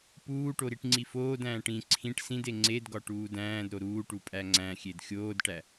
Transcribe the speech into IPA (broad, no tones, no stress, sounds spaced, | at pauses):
p uː ʈ o ɾ i ʈ ŋ͡ǀ i f oː d æ̃ː ʈ ĩ ǀʰ ĩ ʈ s ĩ d e ŋ͡ǀ e d ɡ ɒ ʈ uː d æ̃ː d ɾ o ɾ uː ʈ u pʼ æ ŋ͡ǀ æ̃ xʲ e d xʲ oː d ʈ æ